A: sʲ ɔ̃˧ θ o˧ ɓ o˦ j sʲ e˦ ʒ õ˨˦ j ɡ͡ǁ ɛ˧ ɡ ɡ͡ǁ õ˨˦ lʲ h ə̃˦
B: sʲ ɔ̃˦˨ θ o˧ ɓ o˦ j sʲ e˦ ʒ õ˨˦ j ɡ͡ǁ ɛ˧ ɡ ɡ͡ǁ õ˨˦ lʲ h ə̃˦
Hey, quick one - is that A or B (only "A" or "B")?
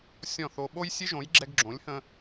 B